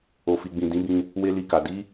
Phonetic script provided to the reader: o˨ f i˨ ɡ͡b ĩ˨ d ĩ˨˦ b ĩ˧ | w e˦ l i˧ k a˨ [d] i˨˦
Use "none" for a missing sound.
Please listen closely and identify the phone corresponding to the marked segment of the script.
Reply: d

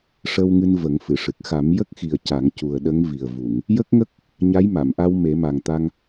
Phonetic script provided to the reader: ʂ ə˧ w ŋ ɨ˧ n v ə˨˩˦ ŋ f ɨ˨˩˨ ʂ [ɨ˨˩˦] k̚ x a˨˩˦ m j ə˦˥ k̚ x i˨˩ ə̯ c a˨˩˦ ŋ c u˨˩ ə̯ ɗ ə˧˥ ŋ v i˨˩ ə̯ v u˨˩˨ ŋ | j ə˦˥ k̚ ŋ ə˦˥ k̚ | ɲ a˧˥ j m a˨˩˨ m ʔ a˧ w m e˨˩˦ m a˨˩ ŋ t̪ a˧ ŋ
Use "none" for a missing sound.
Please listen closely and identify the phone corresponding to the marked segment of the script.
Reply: ɨ˨˩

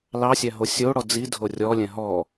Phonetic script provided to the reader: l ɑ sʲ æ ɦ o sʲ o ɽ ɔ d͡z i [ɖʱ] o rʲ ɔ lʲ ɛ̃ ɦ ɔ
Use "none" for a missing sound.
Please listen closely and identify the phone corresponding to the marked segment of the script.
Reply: dʱ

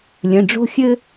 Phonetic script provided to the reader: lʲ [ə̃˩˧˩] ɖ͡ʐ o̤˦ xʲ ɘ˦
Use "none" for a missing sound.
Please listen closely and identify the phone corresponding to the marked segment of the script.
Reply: ə̃˩˧˩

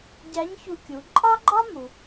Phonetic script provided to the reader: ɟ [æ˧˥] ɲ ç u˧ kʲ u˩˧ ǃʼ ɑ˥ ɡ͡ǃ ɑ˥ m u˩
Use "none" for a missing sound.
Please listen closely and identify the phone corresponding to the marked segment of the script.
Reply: æ˧˥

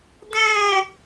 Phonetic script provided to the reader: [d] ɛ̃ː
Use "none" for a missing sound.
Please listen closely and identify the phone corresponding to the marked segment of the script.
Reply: d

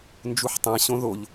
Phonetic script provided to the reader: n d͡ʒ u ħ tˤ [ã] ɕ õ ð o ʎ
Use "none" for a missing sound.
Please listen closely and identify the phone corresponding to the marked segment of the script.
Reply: æ̃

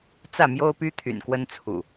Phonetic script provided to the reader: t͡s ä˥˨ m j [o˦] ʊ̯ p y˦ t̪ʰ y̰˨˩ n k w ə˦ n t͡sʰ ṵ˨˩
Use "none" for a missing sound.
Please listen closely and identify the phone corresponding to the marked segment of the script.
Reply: o˦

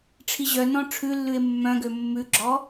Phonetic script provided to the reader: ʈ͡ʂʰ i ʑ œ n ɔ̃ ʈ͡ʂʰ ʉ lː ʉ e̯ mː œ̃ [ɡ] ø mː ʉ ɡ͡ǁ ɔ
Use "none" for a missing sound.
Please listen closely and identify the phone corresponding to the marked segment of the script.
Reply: ɡ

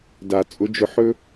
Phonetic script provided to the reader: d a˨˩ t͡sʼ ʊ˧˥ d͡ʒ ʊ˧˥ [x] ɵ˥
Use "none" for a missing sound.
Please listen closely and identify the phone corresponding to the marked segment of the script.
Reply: ħ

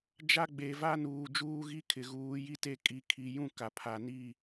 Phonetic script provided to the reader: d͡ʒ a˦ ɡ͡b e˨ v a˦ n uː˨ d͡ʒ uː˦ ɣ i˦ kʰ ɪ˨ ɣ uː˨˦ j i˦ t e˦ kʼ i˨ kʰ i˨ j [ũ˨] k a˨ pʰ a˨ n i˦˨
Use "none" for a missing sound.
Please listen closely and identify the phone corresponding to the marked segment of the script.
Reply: ũ˦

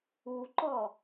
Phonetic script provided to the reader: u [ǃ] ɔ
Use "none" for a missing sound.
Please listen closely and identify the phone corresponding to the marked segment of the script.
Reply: ǃ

